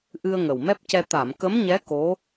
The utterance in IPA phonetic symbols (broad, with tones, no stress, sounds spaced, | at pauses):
ʔ ɨ˧ ə̯ ŋ ə˨˩ w m ɛ˦˥ p̚ c ɛ˧ t̪ a˨˩˨ m k ə˧˥ m ɲ ɛ˧˥ k o˧˥